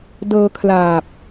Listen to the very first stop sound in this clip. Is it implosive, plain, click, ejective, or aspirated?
plain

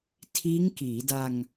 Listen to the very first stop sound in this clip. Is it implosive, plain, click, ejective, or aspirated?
aspirated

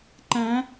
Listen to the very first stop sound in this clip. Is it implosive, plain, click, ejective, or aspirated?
click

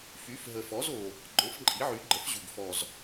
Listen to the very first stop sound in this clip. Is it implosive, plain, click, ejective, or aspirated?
click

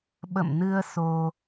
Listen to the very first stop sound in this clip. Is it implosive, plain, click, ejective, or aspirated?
implosive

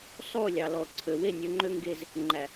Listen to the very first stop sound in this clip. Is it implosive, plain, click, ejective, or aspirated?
click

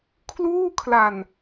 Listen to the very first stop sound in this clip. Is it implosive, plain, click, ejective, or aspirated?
aspirated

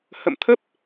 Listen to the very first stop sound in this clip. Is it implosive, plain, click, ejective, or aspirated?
aspirated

